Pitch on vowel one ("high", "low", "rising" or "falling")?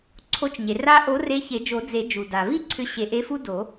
rising